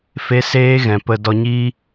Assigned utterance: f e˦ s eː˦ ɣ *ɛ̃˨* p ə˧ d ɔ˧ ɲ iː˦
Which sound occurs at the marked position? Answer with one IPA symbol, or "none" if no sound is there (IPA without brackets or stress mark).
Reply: ɛ̃˨